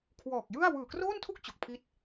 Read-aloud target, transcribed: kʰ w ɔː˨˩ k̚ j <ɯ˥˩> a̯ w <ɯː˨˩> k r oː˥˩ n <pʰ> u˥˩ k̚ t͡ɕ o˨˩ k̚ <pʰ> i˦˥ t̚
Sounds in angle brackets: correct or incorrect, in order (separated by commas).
correct, correct, incorrect, correct